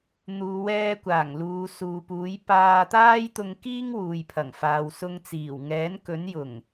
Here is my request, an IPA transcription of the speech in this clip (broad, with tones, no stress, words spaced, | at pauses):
n̪uː˨˧wɛː˧kʷaː˨˩ŋ luː˨˧suː˨puː˨˥j paː˧t̪aː˥jt̪ʊ˧ŋ kiː˥ŋwuː˨jpʰɐ˨˩ŋfaː˨w sʊ˧ŋt͡siː˨˩w ŋɛː˨˥nkɵ˨˥njʊ˨˩ŋ